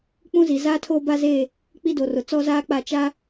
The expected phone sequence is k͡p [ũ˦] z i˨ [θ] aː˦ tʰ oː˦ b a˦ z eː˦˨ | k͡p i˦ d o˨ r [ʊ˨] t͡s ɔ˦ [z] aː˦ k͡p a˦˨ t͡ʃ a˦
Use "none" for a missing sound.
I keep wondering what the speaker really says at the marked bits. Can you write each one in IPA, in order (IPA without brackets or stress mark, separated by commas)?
ũ˦, z, ʊ˨, z